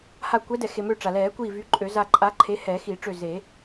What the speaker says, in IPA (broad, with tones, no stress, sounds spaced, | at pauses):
h a˧˩ kʷ ɛ˨˥ d ɛ˩ x e˩ m ø˧˩ ʈ͡ʂ a˩ l ɛː˨˩˦ kʷ iː˧˩ v y˨˥ ǃʼ ø˨˩˦ z a˧˩ ǃʼ a˨˥ ǃʰ e˨˥ h ɛː˨˩˦ x i˨˩˦ ʈ͡ʂ ø˧˩ z e˨˩˦